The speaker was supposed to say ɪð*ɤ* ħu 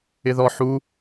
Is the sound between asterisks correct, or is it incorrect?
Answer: incorrect